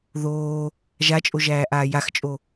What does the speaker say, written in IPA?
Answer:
ðoː | ʒat͡ʃʼoʒæːʔaː jaxt͡ʃʼo

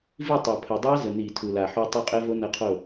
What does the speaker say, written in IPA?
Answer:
vi˥˩tˤɐ˨˩pʰə˨˩ dˤa˦˥ zə˨˩ ni˧˩˧ tʰu˨˩la˨˩ħo˦˥ tˤo˦˥qʼɛ˦˥vo˦˥ nɐ˥˩qʰo˥˩

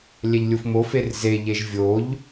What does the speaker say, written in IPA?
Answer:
lʲɛʎlʲufmofer zeʎeʒ vʲoʎ

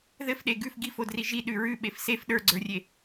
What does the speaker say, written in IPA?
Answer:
ðɘfɗe ɡʉf ɡifodri ʒiɗʉ ɹʉɓef sef ɗə˞ɡ͡ǀə˞rʲe

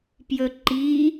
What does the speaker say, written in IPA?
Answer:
pjɵǃi

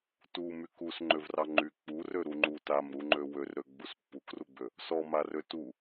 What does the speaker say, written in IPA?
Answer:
tu mykusŋ͡ǃøvrɑ ŋ͡ǃy k͡purø ɾuŋ͡ǃu tamɾuŋ͡ǃø wørɾø ɡ͡buspːukruɡ͡bø | sɔmarø tu

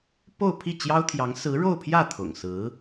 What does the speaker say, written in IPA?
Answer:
po˥˧ʊ̯ pʰi˥˩t͡ɕjɑ˥ʊ̯t̪ʰjɑ˧˥ŋ sɹ̩˧˥ɻo˥˧ʊ̯pʰjä˥˩ t̪ʰʊ̰˨˩ŋsɹ̩˧˥

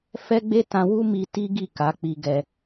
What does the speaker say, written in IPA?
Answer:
fɛ˦ɡ͡be˦ tã˧wu˦mi˧ ti˦ɡi˦˨ ka˨˦k͡pi˧ɡɛ˧

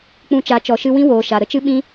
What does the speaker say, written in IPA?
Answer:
k͡pũ˧t͡ʃa˨˦ t͡ʃɔ˨ʃɨ˧wĩ˦ woː˧ʃa˧ ɾə˦t͡ʃɨ˦ ɓĩ˦

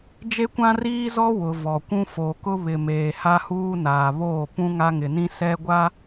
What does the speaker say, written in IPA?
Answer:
d͡ʒe˦kʷã˦riː˦ zɔ˦ wʊ˨ vɔ˨kʷũ˦ fo˨kʊ˦βɪ˨ meː˨ha˦huː˦naː˨ βoː˦˨ pũ˦ŋa˦ŋɪ˨nĩ˦ sɛ˦ɡʷa˦

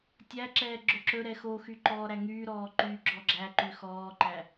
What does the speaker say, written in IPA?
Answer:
tʲæǁɛː ɡ͡ǁɵǁɵɾɛ xoxy ǃɔːɾæŋyːɾɔː ǃyːɡ͡ǁɔɡ͡ǁæǃy xɔːǃæ

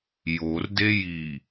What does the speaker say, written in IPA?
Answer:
jordeji

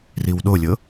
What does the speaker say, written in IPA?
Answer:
riwɗolʲɤ

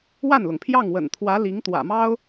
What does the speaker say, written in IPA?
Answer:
wa˥˩nlʊ˩ŋpʰjɑ˥˩ŋ wə̰˨˩nt̪ʰwä˧˥ li˧˥ŋt̪wä̰˨˩mɑ˥ʊ̯

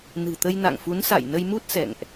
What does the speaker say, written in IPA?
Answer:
nɨ̤˨˩t̪ə˧jna̰˧˨ŋfu˨˦n sa̰˧˨jnə˧jmu˦˥t̚ sɛ̰˧˨ŋʔ

